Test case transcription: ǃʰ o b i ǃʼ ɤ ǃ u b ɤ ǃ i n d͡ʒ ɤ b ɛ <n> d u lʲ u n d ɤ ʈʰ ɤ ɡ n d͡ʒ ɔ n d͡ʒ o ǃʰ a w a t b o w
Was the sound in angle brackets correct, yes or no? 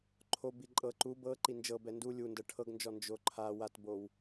yes